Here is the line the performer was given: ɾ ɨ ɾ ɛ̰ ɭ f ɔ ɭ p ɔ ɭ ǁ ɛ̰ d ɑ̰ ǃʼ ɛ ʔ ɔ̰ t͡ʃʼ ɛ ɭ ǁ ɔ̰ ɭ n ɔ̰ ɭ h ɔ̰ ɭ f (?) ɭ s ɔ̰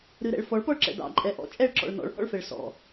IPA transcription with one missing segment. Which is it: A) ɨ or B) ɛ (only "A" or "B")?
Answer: B